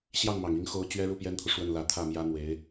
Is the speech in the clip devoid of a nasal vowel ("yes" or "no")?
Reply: yes